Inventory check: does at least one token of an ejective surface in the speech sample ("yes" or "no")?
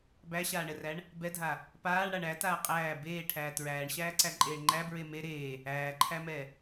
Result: yes